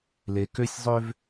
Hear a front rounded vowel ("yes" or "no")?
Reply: yes